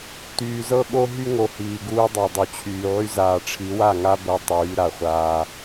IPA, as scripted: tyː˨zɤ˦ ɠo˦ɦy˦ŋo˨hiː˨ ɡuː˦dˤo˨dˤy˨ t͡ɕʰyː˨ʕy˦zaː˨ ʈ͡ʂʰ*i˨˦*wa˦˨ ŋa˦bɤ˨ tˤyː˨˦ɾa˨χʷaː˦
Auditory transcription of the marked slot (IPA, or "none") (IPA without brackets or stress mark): i˨˦